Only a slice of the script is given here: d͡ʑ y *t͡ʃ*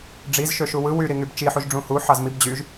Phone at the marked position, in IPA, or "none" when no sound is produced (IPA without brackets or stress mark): ʒ